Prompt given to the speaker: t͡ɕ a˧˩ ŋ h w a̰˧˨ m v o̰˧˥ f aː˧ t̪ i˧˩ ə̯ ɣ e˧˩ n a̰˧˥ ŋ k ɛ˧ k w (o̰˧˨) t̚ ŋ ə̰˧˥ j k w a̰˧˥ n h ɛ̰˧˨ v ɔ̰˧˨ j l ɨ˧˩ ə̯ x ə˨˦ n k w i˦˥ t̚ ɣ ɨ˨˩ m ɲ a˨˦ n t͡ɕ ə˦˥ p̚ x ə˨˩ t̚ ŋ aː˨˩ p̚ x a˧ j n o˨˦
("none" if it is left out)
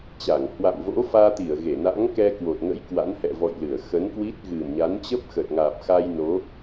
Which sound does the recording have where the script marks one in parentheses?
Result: o˨˩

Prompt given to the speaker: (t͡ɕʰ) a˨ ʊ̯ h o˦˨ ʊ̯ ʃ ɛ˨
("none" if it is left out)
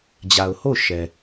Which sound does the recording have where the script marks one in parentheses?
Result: d͡ʑ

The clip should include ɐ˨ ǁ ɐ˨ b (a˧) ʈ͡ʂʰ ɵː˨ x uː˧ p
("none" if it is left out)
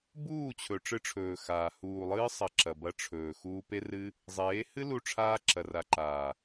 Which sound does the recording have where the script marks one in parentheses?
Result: ɐ˧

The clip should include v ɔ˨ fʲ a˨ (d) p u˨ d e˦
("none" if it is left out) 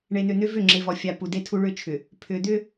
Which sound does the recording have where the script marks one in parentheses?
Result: none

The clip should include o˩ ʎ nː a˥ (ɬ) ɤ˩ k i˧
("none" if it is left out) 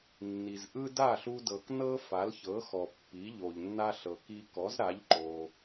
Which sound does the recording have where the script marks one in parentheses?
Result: ɬ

